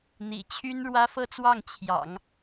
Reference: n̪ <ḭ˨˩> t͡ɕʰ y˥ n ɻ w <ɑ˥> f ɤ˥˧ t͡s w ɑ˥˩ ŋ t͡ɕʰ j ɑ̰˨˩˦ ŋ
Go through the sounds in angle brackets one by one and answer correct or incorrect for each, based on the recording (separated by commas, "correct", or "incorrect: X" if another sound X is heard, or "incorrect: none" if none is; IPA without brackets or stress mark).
correct, incorrect: ä˥